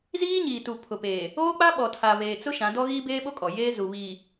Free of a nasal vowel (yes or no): no